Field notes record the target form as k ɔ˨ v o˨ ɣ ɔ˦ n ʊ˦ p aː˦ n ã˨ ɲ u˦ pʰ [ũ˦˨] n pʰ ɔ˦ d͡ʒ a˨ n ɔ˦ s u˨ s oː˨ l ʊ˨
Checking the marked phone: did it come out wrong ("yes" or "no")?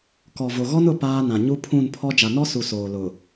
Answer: no